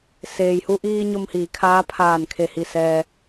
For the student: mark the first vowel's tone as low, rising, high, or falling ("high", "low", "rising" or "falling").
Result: low